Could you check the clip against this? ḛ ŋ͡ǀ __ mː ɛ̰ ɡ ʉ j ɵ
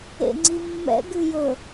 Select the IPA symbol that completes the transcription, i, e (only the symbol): i